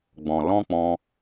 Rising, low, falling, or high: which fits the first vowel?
low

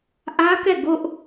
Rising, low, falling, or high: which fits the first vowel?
high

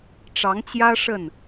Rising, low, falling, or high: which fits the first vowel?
rising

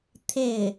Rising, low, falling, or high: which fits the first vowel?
falling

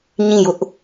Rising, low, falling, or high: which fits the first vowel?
falling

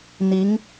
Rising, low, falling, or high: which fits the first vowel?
rising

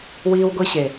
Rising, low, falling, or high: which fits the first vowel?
high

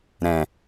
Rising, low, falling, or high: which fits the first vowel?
low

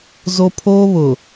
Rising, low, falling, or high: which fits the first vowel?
high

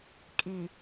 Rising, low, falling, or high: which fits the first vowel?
low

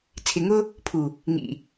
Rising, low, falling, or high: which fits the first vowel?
low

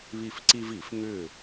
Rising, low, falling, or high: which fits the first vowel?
falling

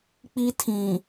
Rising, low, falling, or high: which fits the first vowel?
high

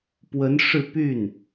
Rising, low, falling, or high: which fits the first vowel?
rising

